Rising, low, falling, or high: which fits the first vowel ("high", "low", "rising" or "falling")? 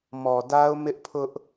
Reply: low